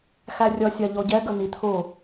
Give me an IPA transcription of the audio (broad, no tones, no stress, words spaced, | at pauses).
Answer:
xærʲʌsʲɑ ʎɔɟɛ ɡən̪it̪ʰʊ